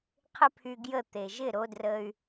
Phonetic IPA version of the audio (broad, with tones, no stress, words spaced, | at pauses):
qʰɪ˥pʰy˧ɡjə˥˩ t̪e˩ʒɪ˥˩ɾo˧ drə˧y̯